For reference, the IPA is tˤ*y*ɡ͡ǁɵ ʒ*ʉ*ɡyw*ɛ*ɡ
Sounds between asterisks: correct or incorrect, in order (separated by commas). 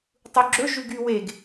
incorrect, correct, incorrect